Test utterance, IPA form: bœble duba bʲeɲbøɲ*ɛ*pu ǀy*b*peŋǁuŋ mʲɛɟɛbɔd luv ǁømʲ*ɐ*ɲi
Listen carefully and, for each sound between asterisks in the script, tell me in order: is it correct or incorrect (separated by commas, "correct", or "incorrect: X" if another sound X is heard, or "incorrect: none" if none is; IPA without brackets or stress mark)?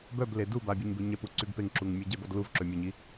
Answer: correct, correct, correct